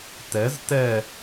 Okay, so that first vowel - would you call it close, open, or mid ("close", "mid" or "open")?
mid